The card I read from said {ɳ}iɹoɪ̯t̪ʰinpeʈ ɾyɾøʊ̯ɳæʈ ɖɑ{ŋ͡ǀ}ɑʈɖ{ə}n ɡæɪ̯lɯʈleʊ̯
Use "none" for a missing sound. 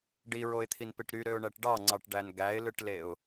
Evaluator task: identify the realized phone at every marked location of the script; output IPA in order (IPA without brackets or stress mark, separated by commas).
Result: ɖ, ŋ͡ǀ, æ